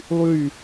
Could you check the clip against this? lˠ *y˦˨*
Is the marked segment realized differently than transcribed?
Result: no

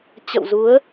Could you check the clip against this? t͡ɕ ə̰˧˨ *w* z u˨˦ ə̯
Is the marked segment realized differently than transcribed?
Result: no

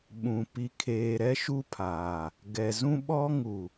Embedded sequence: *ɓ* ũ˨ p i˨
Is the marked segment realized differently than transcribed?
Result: no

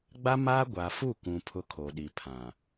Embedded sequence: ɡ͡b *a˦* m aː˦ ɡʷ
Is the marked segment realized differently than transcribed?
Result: no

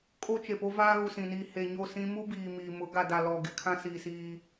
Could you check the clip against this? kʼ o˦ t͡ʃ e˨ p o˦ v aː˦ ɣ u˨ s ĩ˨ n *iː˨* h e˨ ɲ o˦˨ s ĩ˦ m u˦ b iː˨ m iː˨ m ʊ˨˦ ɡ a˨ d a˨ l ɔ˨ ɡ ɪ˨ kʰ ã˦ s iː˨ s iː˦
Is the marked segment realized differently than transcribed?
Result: no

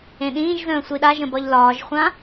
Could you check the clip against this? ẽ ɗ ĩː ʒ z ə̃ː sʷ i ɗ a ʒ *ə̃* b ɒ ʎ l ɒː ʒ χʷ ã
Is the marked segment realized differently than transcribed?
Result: no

